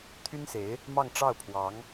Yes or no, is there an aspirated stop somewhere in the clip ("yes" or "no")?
yes